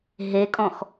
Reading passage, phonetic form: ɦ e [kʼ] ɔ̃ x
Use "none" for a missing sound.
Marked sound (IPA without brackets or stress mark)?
kʼ